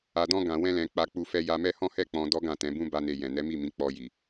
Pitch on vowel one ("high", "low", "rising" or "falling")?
low